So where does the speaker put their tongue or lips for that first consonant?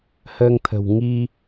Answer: throat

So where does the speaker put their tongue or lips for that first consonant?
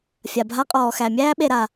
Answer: lips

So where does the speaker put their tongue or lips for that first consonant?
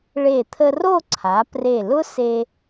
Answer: retroflex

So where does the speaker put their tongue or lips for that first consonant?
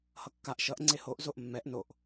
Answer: throat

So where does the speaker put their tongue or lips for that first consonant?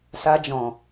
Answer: tongue tip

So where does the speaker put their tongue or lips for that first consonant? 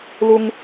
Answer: tongue tip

